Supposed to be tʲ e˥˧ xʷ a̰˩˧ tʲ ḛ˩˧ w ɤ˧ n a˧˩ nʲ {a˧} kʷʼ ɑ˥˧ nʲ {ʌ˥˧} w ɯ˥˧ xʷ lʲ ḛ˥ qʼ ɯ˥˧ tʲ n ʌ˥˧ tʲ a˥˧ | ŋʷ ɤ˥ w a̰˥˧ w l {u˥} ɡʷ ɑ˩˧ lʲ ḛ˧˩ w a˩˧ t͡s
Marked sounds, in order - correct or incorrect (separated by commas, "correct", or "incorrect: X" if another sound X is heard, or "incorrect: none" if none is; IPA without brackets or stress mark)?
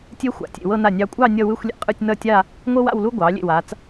incorrect: ɑ˧, correct, correct